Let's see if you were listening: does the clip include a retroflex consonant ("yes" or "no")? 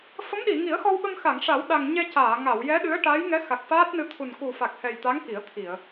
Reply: yes